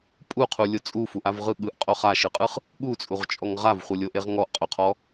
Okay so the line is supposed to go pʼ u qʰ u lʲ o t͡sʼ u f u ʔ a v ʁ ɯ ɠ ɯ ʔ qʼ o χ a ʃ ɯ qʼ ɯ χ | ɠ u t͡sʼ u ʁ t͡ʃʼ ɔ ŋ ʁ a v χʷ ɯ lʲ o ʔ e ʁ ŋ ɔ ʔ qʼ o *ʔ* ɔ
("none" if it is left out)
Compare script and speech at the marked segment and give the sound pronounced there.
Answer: qʰ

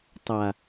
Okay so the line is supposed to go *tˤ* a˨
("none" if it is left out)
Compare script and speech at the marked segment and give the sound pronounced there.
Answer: tˤ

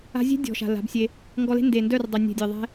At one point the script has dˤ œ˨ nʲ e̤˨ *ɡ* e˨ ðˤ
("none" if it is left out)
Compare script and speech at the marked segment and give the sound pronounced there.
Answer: dʲ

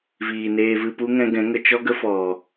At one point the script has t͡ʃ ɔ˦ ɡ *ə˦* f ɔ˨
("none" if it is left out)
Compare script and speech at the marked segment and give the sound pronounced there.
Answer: ə˦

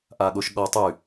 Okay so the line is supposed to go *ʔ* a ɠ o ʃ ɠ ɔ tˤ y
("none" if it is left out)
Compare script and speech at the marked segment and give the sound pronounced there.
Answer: ʔ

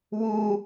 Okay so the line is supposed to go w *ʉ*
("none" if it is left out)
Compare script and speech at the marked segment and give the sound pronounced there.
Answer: u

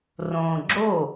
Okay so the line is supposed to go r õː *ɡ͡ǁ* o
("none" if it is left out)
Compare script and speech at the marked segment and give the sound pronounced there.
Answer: ɡ͡ǁ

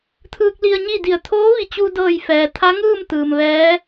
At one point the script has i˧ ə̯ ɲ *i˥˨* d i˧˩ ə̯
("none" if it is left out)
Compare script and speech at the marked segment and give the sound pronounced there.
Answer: i˥˨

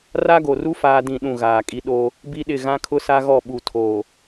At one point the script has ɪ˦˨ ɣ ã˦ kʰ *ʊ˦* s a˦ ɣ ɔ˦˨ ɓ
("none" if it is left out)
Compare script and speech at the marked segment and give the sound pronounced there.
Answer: ʊ˦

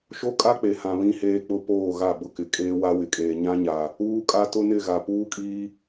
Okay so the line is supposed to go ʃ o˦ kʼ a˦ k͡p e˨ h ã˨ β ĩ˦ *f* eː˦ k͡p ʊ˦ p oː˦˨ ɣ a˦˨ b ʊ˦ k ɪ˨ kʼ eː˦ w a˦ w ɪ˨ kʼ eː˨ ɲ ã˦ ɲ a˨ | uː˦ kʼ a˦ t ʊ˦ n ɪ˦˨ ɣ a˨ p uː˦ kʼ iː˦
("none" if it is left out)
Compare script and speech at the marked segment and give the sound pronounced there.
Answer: h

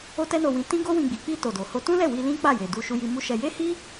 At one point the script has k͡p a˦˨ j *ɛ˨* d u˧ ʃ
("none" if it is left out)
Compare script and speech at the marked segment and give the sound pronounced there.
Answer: e˨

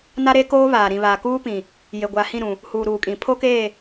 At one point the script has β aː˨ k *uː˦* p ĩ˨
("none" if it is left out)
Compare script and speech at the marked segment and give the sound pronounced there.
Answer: uː˦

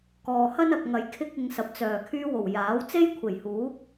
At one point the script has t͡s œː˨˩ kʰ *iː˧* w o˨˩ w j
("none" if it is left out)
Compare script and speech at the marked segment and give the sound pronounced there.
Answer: yː˧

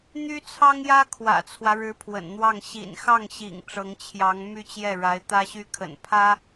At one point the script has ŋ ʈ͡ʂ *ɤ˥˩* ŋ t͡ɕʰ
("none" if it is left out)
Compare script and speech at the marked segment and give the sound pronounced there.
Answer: ɤ˧˥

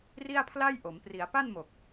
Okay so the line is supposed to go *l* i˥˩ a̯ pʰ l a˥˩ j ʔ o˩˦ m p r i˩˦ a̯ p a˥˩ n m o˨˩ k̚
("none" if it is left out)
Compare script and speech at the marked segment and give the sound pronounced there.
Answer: r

